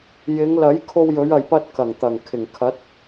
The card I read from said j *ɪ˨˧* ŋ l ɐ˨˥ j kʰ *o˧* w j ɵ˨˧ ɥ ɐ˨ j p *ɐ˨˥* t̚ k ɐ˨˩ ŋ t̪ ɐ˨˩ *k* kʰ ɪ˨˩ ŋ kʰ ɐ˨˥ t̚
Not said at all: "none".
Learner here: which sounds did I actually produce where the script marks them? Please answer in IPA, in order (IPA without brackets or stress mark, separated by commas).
ɪ˨˧, o˧, ɐ˧, ŋ